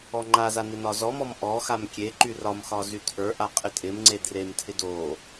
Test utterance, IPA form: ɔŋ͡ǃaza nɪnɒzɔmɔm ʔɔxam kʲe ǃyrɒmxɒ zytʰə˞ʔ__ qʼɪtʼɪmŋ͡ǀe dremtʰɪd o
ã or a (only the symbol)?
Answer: a